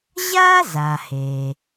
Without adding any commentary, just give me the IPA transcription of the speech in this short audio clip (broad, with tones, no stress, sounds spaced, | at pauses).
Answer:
ʑ a˥ z a˩ h e˩